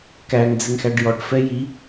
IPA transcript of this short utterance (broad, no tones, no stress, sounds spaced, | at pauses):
k æ ŋ d͡z ɪ ŋ x æ ɖ j ɔ ʈ f ɛ j i